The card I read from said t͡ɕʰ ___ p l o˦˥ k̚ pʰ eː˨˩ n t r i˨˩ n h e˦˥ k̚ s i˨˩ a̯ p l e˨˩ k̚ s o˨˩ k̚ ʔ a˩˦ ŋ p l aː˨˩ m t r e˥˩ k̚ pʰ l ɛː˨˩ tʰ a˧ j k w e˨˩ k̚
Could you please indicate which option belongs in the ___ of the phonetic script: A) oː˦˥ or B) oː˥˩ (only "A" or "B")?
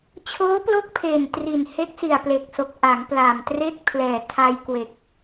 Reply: A